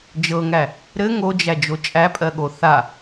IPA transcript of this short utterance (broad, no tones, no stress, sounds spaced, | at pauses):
d͡ʒ ɤ ŋ æ | ɾ ɘ ŋ o d͡ʒ æ d͡ʒ o t͡ʃʼ æ pʼ ɜ ɠ o θ a